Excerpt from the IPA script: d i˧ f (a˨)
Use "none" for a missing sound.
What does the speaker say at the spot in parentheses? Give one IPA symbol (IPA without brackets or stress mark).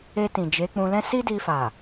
a˨